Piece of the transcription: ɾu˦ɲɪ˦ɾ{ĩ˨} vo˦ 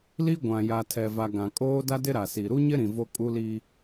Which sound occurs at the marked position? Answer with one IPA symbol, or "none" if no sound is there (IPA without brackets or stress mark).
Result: ĩ˨